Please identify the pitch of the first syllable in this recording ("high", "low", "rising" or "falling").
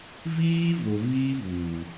high